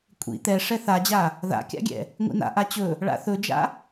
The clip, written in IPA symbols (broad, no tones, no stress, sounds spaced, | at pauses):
kʷʼ ḭ t̪ ɛ ʂ ɛ θ a d͡ʑ a | ð a̰ kʲ a̰ ɡʲ ɛ̰ | ŋʷ ḭ n a̰ ʔ a t͡ɕ ɵ | ɭ a̰ θ ɵ d͡ʒ a̰